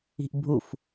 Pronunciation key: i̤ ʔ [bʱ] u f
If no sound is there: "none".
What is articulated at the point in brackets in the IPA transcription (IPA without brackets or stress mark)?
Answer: bʱ